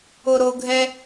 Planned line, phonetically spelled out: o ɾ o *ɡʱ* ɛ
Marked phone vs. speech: correct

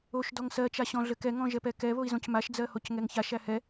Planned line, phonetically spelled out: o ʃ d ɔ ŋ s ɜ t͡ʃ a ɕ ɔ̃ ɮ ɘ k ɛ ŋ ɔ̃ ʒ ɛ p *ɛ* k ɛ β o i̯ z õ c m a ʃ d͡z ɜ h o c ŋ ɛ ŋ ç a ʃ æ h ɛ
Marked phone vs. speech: correct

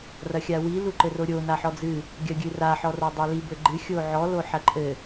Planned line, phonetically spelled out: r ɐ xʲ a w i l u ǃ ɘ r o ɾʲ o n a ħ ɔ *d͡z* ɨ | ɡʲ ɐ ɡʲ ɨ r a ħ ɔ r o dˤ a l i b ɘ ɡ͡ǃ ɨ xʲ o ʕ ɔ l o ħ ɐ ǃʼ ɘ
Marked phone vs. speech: correct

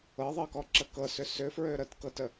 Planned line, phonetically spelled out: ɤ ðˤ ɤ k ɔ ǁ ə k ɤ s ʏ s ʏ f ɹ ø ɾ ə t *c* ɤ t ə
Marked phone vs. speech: incorrect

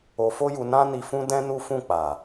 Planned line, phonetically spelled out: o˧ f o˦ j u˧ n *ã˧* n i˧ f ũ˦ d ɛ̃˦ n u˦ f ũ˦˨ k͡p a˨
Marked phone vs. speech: incorrect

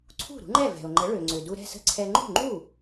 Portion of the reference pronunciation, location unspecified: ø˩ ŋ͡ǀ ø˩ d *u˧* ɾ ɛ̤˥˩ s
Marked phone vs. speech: correct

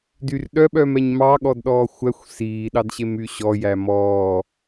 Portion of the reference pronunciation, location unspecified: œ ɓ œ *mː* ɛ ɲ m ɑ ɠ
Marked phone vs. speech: incorrect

